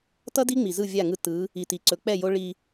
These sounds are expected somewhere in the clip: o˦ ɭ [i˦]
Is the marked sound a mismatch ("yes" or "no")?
no